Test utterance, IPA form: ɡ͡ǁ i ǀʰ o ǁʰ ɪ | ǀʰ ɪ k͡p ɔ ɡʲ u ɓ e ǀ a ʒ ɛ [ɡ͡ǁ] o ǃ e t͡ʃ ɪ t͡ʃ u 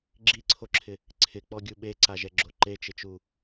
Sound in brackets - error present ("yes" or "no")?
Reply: no